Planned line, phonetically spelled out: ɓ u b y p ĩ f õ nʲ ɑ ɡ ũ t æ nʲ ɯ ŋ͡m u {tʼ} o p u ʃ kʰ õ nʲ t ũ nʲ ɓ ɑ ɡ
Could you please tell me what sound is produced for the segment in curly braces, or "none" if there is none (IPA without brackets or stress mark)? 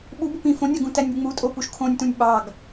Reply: tʼ